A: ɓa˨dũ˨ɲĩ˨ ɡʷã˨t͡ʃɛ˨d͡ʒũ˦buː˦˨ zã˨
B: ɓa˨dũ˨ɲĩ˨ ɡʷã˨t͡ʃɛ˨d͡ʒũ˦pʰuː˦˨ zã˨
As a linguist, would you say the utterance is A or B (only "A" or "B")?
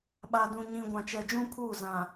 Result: B